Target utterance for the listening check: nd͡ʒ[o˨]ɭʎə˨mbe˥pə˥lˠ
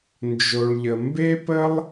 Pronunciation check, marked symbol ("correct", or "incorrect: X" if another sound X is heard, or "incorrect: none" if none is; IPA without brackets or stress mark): correct